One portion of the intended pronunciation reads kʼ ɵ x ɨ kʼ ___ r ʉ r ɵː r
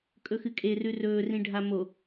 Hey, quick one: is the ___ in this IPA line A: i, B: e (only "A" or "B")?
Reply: B